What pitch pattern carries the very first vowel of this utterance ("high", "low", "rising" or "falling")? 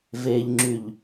low